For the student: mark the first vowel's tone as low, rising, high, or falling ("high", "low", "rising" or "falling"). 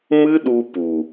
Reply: high